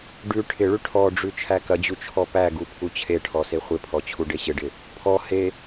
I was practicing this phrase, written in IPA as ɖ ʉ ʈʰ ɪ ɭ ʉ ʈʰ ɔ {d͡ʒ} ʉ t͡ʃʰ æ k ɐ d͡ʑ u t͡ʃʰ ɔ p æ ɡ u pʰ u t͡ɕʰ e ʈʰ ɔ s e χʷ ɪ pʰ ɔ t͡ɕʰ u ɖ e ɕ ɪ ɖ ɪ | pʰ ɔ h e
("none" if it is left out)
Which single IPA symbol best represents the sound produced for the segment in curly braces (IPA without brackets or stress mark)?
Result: ɖ͡ʐ